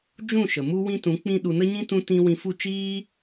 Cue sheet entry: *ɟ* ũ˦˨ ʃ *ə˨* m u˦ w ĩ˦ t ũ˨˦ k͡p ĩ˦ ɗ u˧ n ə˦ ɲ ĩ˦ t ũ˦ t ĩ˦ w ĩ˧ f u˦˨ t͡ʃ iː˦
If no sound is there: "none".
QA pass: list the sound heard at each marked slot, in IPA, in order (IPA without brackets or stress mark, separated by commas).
d͡ʒ, ə˨